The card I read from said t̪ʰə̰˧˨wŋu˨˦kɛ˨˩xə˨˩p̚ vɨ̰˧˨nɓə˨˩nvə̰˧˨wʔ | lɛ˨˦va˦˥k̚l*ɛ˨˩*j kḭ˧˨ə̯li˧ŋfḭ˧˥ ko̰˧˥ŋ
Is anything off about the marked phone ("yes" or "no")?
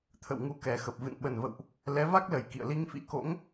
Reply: yes